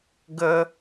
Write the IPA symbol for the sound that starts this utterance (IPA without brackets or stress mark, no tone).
ɡ